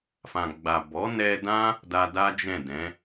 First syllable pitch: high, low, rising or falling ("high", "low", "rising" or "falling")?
low